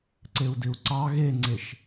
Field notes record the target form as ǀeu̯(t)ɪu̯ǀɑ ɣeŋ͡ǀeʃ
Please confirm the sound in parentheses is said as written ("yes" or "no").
no